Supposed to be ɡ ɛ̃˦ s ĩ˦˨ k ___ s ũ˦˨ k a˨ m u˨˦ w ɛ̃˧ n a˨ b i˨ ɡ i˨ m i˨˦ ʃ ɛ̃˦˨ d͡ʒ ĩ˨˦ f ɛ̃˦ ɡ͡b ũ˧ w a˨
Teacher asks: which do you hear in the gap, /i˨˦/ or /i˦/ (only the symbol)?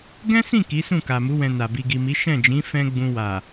i˨˦